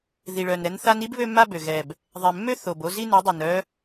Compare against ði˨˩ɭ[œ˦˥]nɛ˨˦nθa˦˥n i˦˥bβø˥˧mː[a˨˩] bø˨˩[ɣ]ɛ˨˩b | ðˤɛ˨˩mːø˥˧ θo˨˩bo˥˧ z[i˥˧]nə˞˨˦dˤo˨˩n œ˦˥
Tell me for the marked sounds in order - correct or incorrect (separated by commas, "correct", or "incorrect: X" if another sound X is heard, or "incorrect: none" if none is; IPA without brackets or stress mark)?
incorrect: œ˨˩, incorrect: a˥˧, correct, correct